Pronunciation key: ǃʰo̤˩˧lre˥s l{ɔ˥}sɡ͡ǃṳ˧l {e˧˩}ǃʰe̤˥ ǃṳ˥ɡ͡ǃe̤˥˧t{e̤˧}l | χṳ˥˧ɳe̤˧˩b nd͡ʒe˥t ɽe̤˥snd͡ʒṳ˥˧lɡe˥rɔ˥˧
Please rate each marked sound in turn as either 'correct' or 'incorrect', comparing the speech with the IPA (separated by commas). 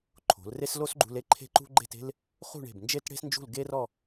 incorrect, incorrect, incorrect